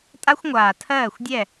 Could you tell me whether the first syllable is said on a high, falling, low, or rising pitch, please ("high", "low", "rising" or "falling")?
high